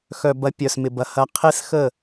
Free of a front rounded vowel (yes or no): no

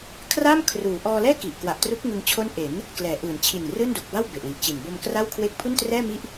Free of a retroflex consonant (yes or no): yes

